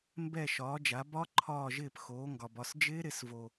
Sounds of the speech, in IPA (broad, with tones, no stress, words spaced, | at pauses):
mbɛ˧˩ ʃɒː˩˧d͡ʒa˩˧ bɒ˦˥ ǃʰɒː˧˩ʒɪː˧˩p xoː˩˧ŋɡɒ˩bɒ˧˩s d͡ʒɪː˦˥ ɾɪ˩˧svo˩